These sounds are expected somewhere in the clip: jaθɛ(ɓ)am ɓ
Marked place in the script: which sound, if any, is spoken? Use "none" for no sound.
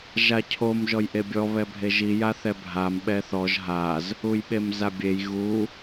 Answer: bʱ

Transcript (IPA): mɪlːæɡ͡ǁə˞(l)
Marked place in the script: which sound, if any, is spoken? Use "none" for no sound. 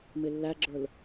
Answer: l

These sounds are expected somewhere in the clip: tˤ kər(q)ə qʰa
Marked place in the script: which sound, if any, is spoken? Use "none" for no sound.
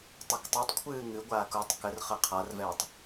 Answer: χ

